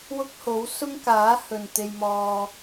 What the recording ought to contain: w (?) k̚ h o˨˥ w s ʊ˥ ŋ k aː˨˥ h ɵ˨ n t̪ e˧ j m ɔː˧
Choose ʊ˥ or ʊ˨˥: ʊ˥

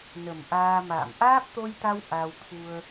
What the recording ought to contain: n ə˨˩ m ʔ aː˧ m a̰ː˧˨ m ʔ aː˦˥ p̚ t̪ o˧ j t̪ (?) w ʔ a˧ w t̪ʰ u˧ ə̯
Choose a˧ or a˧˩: a˧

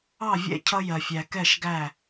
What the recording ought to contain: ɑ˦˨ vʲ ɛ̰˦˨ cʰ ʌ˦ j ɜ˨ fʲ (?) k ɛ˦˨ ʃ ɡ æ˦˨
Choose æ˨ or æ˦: æ˨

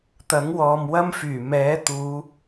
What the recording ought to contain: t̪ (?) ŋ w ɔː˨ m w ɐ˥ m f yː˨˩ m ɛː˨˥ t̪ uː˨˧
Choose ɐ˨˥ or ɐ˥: ɐ˨˥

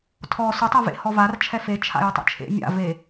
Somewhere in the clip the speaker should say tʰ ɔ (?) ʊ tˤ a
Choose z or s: s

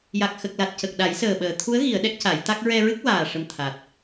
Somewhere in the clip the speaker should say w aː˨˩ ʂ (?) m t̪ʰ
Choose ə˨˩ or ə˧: ə˨˩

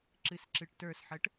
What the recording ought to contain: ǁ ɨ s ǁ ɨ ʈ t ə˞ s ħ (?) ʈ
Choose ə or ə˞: ə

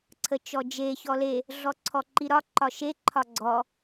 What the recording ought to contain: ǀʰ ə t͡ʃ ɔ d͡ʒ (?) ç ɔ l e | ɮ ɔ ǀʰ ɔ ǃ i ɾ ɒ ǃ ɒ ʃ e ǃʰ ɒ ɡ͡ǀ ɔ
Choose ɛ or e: e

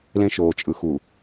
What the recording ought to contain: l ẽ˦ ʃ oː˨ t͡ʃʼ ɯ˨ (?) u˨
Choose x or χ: x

